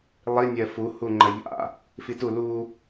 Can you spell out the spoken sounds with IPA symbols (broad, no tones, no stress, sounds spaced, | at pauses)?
lˠ i nʲ ɜ f u h u ŋ͡ǃ ɜ ʎ a̰ | f i t u l u